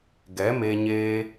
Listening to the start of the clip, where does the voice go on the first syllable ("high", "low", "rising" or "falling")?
rising